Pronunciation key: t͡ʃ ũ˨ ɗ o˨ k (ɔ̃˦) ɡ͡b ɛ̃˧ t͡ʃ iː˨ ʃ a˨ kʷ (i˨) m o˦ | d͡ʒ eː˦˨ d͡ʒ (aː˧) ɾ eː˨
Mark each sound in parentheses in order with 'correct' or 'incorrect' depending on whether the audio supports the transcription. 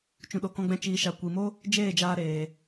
incorrect, correct, correct

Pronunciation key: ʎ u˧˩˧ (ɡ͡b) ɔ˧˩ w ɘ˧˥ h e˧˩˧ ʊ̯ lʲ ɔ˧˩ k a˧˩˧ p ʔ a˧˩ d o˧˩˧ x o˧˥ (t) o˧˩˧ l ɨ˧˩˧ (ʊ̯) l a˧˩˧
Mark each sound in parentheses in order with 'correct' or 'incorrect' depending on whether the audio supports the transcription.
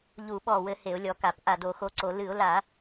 incorrect, incorrect, correct

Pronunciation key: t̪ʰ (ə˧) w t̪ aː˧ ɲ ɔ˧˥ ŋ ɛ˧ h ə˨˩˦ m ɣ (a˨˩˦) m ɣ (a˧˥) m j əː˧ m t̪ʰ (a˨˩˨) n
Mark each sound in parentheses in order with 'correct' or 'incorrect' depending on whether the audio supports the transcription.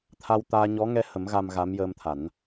incorrect, incorrect, correct, incorrect

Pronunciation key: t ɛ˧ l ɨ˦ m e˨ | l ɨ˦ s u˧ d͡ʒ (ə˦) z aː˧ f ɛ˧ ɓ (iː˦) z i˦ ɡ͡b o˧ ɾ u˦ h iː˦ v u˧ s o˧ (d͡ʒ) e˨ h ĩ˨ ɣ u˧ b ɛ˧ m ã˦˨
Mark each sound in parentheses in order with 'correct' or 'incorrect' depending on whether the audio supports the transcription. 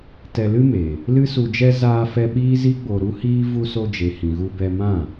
incorrect, correct, correct

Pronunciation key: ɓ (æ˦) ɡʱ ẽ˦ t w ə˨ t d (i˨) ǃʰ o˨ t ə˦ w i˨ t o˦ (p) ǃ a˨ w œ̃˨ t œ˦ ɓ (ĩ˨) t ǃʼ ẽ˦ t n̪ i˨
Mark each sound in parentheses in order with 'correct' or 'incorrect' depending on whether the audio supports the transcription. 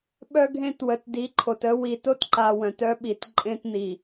incorrect, incorrect, incorrect, incorrect

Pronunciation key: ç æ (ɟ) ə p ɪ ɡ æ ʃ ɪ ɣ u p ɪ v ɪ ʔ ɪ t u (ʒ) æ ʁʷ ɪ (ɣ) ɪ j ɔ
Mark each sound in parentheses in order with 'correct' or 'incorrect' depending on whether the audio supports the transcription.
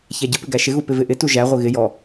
correct, correct, correct

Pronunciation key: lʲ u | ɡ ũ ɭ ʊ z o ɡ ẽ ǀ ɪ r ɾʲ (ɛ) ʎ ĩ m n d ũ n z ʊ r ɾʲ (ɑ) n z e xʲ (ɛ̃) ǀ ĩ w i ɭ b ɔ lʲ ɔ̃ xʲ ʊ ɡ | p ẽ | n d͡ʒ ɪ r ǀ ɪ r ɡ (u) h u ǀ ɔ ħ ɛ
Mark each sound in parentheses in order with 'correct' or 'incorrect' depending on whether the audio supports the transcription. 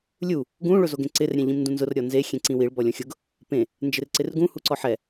incorrect, incorrect, incorrect, incorrect

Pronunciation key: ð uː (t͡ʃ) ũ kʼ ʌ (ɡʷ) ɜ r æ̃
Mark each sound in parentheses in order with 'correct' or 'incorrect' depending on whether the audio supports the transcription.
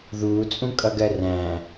incorrect, incorrect

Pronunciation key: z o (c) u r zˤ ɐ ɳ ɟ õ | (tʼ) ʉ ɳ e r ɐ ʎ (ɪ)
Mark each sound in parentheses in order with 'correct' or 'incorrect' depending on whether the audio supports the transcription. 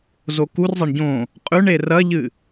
incorrect, incorrect, incorrect

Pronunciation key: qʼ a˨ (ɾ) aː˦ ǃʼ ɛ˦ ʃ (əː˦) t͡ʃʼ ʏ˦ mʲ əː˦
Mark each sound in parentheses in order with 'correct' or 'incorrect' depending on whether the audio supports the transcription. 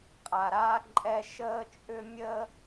correct, correct

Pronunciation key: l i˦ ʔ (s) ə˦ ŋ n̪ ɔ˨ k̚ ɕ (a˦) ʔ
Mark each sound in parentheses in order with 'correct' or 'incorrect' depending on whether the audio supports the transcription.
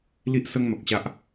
correct, correct

